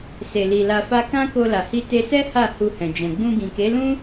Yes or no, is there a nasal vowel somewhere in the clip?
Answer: yes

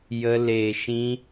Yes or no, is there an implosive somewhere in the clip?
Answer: no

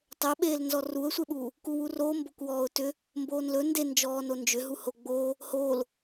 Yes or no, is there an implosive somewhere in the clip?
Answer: yes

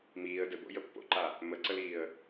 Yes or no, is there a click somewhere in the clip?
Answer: yes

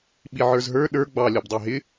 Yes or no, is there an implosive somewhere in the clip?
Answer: yes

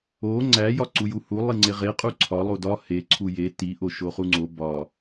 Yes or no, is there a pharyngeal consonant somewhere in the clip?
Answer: no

